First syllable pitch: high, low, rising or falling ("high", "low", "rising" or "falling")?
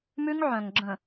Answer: high